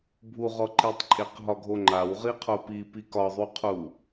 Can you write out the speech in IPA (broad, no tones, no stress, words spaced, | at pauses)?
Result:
bʱuʁɔ ǃitˤ ǃʼeqɦɒɡʱoŋ͡ǃaw ʁiqʰopipi kɒðˤuqʰu